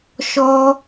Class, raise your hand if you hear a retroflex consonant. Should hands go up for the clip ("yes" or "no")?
no